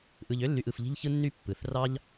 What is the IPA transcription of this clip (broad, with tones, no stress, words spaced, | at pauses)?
ʔɯ˨ʎø˥lːy˨ʔ ɯ˨fʎi̤˦ʎ çɯ˦nːy˦ pːɯ˩θ rɑ˦ʎ